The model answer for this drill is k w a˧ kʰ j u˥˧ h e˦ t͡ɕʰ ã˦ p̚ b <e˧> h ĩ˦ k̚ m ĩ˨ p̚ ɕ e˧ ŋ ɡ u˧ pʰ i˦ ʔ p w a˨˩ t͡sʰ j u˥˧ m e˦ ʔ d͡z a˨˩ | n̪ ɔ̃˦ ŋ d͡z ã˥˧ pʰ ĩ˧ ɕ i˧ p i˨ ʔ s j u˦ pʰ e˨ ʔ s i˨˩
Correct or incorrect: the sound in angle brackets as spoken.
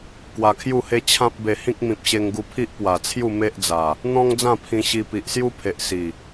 correct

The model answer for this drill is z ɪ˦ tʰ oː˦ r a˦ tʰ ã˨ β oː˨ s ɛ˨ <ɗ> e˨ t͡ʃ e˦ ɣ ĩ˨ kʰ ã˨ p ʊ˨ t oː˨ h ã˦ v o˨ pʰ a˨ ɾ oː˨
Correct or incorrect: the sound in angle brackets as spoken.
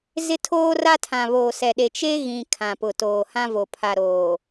correct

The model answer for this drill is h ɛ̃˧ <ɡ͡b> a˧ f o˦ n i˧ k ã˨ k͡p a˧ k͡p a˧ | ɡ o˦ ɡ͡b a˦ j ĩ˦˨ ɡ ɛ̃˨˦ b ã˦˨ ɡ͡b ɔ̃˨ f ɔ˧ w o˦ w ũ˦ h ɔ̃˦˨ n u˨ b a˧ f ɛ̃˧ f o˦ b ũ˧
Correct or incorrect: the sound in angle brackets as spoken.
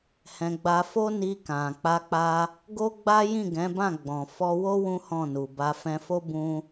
correct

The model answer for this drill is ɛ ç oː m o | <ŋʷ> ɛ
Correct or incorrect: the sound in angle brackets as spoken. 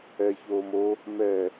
incorrect: m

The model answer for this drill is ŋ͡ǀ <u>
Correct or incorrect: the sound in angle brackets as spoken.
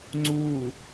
correct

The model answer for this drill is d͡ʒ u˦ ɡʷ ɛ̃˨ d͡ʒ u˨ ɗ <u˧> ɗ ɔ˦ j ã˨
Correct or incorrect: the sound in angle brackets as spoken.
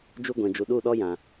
incorrect: u˦˨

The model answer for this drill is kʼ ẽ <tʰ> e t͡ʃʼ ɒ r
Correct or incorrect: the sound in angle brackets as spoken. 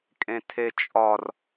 correct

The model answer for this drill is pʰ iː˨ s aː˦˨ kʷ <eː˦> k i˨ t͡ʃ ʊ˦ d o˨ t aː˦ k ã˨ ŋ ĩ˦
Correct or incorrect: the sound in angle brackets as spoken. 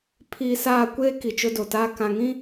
correct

